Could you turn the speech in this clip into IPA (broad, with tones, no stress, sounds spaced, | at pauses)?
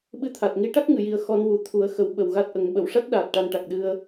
ɓ ɨ˧ t̪ʰ a˨˩ t̚ ŋ i˧˥ ʈ a˦˥ k̚ ŋ ɨ˨˩˨ j i˨˩ ə̯ x ɔ˧ n w u˨˩˦ t̪ʰ u˨˩˦ ə̯ x ə˨˩˦ w ɓ ə˨˩ w ɣ a˦˥ t̚ ʔ ə˨˩˦ ŋ ɓ ə˨˩˨ w ʂ a˦˥ t̚ ɗ aː˨˩ t̚ ʈ a˧ n ʈ a˨˩ k̚ ɗ ɨ˧ ə̯